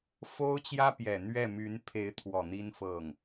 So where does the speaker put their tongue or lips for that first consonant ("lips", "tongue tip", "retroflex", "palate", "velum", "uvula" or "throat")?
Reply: lips